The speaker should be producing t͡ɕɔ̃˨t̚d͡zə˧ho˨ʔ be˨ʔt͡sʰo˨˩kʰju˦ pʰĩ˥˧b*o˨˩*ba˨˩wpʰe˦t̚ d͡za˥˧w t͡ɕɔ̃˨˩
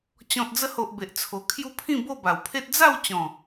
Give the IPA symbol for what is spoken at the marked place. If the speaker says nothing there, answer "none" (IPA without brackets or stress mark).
o˥˧